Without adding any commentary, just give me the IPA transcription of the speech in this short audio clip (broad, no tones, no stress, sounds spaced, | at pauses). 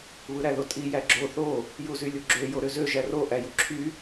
β ɯ ɾ æ ð o tʼ i j æ ɡ͡ǁ o θ o | j u z y lʲ u ɡ͡ǁ ø j o ɾ ø z ø ʒ æ r o ʔ æ j u ǁʰ y